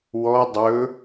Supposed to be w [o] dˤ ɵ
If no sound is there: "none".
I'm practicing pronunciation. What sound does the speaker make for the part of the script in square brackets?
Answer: ɔ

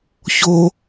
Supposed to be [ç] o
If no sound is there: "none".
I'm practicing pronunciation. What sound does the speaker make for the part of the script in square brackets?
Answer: ç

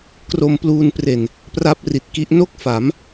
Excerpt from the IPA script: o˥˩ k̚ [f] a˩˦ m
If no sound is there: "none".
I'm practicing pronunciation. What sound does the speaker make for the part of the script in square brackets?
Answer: f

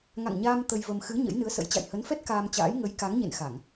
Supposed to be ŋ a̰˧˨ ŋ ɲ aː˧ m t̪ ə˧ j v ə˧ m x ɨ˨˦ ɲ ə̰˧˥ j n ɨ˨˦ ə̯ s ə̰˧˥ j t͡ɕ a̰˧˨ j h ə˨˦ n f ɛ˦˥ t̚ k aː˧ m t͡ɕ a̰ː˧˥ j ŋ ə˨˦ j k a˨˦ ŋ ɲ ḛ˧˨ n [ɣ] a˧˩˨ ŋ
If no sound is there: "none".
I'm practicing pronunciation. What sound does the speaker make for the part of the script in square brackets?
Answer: x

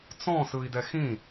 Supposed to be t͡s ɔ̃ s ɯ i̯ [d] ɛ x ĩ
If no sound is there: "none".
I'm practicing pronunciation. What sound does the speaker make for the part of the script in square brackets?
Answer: d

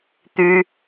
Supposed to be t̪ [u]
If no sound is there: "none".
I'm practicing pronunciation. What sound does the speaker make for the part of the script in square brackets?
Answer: y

